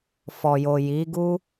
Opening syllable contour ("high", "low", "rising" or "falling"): low